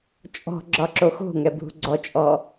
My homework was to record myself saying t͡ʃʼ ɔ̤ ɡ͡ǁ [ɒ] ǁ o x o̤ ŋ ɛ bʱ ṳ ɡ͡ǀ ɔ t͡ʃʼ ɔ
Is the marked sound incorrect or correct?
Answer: correct